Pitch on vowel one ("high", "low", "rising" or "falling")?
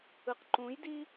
low